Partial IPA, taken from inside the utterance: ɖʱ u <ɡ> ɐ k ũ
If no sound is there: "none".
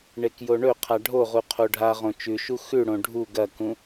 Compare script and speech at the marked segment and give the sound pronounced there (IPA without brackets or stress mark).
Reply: ɡ